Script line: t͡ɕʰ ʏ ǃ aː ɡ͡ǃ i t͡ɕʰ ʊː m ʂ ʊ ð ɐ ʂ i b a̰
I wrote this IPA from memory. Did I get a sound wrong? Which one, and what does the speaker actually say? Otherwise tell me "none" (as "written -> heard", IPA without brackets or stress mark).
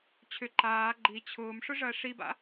ð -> ʐ